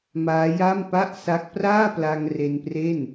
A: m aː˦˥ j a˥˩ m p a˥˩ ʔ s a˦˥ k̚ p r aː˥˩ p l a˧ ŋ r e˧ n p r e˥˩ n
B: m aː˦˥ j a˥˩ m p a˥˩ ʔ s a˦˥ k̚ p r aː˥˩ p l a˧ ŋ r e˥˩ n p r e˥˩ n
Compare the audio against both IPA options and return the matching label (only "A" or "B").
A